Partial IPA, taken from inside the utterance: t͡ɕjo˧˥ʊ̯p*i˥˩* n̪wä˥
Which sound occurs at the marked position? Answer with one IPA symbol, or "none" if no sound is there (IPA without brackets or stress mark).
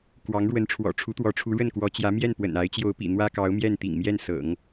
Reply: ḭ˨˩